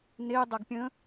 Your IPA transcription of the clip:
n e dˤ a ɡ pʲ ə̃

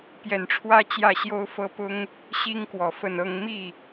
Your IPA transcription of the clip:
p j ɛ˨˩ n ʈ͡ʂʰ w ä˥˧ t͡ɕ j ä˥˩ ɕ j o˥ ʊ̯ f ɤ˥ p ʊ˥ ŋ | ɕ i˥ ŋ k w ɔ˨˩ f ə˥˩ n ɤ˥ ŋ m i˥˩

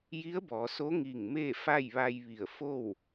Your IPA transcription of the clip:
j i˧˥ ə̯ b ɔː˩˧ s o˧˥ ŋ iː˧˩ ŋ m eː˥˨ f a˥˨ j ʋ a˧ j ʋ i˧˩ ə̯ f o˥˨ w

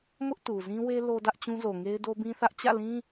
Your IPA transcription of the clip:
m ʊ˦ ʔ t u˨ z ĩ˦ w e˦ l o˦ d ä˦ ʔ t͡ɕ ũ˦ z o˨ ŋ e˦ ɪ̯ d o˦ b ĩ˦ θ ä˦ ʔ t͡ɕ ä̰˦˨ l ĩ˦

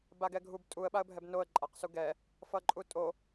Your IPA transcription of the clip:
b a ɡ ɛ ɡʱ u b tʼ u ə̯ ɓ a ə̯ bʱ ɛ b n o ə̯ ǃʼ a q s u ɡ ɛ | f ʌ ǃʼ u tʼ o

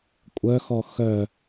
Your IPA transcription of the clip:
kʷʼ œ x ɔ x œ

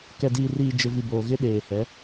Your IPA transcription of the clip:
k ɛ˨ d iː˨ r iː˨ d͡ʒ ɪ˨ v i˨ b oː˨ ɣ ɪ˦ ɗ eː˨ h ɛ˨˦

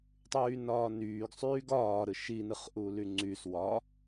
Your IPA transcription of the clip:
tˤ yː n ɒː n yː ɡ sˤ yː ɡ ɒː ɾ ɯ ʃ i n ɯ χ ʔ uː l y ŋ͡ǀ y s w ɒ

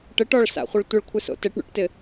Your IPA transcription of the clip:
ʈ ɘ ʈ ɔ ɭ s a̰ χʷ ɪ ɭ tʷ ɘ ɭ kʷʰ ɪ s o̰ t ɘ ʈ ɳ o̰ ʈ t ɪ

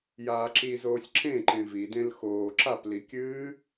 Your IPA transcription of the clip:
j aː ǁ i z oː sʲ ǁ ẽ ǃ ẽ v i d ẽ l x oː ǁ a p l i kʲ ɨː

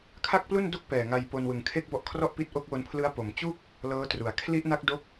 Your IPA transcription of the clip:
kʰ a˥˩ k̚ p l u˥˩ n d o˥˩ k̚ p ɛː˨˩ ŋ a˧ j p o˧ n w ɯ˨˩ ŋ kʰ e˥˩ k̚ b ɔ˦˥ ʔ kʰ r ɔ˥˩ ʔ p i˦˥ t̚ ʔ o˦˥ k̚ w o˧ n pʰ l ɯ˦˥ a̯ p o˩˦ m t͡ɕ u˥˩ k̚ | l ɤː˦˥ t r u˩˦ a̯ kʰ l i˦˥ ʔ n a˦˥ k̚ d o˦˥ k̚

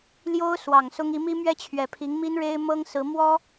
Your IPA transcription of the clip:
l j o˥ ʊ̯ s w ɑ˨˩ ŋ s ʊ˥ ŋ i˧˥ m i˥ m ɥ ɛ˥ t͡ɕʰ ɥ ɛ˨˩ pʰ i˧˥ ŋ m i˥ n ɻ e˥ ɪ̯ m ɤ˥ ŋ s ɹ̩˧˥ m w ɔ˥

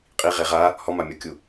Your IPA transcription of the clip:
qʼ i ʁ e ʁ a | h ɔ m a mʲ ɔ kʲ u

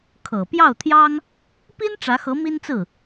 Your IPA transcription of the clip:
kʰ ɤ˨˩ p j ɑ˥˩ ʊ̯ t̪ʰ j ɑ˥ ŋ | p i˥ n ʈ͡ʂ ä˧˥ x ɤ˧˥ m i˥ n t͡s ɹ̩˥˩

